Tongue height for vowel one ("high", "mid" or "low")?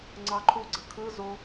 low